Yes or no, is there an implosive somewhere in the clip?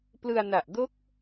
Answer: no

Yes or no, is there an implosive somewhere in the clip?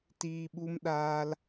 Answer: yes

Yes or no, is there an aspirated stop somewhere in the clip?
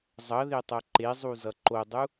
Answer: no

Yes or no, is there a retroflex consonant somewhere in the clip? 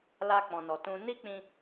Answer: no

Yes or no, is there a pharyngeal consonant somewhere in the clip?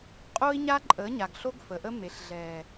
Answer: no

